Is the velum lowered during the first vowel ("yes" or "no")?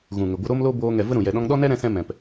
yes